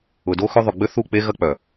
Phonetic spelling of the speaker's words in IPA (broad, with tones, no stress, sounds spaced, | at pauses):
ʊ˨ d o˦ x ʏ˦ ðˤ ʊ˨ ɡ͡b ʏ˦ θ u˦˨ k͡p e˦ ɣ ɐ˦ k͡p œ˨